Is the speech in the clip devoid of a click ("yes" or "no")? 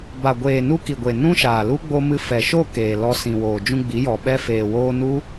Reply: yes